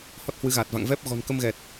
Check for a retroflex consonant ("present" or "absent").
absent